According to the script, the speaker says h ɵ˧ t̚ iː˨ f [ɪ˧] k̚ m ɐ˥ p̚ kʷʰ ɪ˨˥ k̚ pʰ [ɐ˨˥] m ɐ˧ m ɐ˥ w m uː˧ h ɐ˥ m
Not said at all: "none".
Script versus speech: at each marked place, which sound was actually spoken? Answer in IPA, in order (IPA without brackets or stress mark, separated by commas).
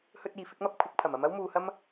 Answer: ɪ˨˥, ɐ˨˩